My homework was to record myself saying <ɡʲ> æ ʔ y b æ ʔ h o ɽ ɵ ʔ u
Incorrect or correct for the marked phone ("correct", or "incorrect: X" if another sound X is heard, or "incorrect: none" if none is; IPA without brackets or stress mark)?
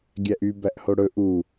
correct